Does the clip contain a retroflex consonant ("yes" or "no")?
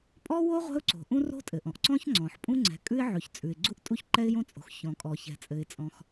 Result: no